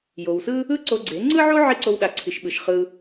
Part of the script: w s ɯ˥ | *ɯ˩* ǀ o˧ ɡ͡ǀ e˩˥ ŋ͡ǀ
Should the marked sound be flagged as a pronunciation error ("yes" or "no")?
yes